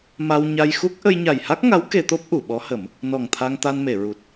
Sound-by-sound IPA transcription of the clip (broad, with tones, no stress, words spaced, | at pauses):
ma˧wɲa˧jxu˦˥k̚ ʔə˧jɲa˨˩jha˦˥k̚ŋa˧˥w ke˧t̪o˦˥p̚ ʔu˨˩˨ɓɔ˧˥hə˨˩˦m | nɔ˨˩ŋt̪ʰa˧ŋ t̪a˧nme˨˩˨ ɹu˨˩t̚